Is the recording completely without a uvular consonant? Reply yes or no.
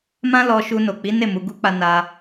yes